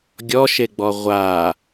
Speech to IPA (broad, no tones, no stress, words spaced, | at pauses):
ɡʲɔʃeɡ͡bɔ ʁʷa